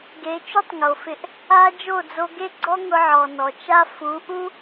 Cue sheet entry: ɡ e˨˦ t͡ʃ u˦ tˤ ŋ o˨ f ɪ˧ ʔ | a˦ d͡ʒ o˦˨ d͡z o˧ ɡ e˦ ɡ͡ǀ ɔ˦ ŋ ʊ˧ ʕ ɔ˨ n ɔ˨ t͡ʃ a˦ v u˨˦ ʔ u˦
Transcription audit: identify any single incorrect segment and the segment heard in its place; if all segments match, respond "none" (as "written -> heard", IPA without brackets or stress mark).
v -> f